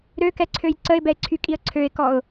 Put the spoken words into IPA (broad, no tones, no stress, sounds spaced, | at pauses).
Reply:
ɾ ø k ɛ ǀʰ ø j ǀ ə ɪ̯ b ɛ ɪ̯ ǀʰ y kʼ i ə̯ ǀʰ ø ɪ̯ k ɔ ʊ̯